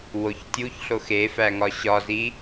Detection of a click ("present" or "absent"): absent